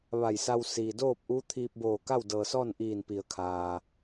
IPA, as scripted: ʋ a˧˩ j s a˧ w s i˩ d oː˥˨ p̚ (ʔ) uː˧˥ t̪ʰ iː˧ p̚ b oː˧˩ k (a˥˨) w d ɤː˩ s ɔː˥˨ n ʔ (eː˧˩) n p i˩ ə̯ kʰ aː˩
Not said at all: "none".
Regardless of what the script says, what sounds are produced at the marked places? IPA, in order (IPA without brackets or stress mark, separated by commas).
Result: ʔ, a˥˨, iː˧˩